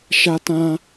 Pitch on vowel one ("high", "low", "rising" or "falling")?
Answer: high